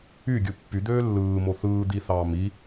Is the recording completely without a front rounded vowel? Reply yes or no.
no